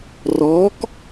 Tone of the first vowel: rising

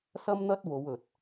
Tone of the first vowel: high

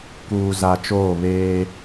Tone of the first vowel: low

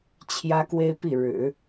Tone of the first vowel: high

